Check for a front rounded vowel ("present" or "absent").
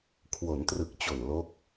absent